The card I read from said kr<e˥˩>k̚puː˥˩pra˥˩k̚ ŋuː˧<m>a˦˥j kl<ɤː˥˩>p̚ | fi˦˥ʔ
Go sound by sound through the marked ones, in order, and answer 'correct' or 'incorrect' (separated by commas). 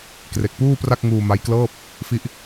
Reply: incorrect, correct, correct